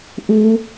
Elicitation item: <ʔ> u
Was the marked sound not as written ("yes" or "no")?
no